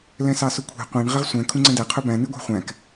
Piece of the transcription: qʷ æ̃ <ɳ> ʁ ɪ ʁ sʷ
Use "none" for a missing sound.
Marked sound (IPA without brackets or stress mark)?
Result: ɳ